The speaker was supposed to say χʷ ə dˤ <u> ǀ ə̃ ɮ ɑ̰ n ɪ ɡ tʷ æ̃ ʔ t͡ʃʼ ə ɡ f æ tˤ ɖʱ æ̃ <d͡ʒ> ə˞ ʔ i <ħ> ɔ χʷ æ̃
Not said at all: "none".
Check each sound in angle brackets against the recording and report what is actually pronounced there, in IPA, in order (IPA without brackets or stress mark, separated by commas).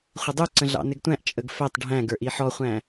u, ɡ, ħ